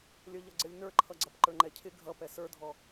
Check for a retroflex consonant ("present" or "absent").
absent